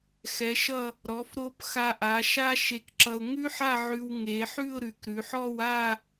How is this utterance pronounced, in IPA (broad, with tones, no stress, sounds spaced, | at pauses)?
x ɛ˩˧ ʃ ʌ˧˩ | ɾ ɔ˩˧ f ɾ o˧ p x a˧ ʔ a˩˧ ʃ a˥ ʃ e˧ k ǁ ʌ˧ ʊ̯ ŋ ʉ˥ ħ a˥˧ ʕ ʉ˧ w ŋ e˩˧ ħ ʉ˥˧ ʊ̯ ɾ ʉ˩˧ k ɾ ʉ˩˧ ħ ɔ˥˧ w a˥˧